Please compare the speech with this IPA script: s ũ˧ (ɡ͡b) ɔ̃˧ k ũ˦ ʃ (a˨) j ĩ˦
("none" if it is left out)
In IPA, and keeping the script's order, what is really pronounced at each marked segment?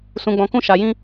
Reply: ɡ͡b, a˧

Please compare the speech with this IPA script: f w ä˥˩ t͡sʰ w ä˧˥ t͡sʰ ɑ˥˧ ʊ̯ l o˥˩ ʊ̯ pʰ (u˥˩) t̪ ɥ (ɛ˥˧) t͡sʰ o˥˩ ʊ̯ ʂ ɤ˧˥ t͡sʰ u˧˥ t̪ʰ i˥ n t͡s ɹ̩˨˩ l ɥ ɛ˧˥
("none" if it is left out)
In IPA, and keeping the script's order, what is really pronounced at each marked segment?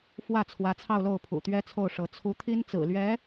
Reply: ṵ˨˩, ɛ˥

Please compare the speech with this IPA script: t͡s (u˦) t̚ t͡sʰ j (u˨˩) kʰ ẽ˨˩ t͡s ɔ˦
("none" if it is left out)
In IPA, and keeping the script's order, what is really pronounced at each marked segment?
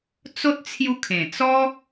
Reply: o˦, u˧

